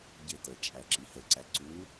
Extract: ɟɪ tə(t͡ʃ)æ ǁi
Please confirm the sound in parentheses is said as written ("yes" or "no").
no